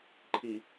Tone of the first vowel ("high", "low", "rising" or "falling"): low